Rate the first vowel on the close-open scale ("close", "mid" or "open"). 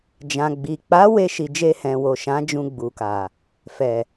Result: open